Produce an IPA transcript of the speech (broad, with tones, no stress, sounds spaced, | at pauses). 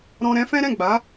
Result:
ɾ ɔ̃˧ ɾ ɛ̃˦ f ɛ̃˦ ɾ ɛ̃˦˨ ɡ͡b a˨˦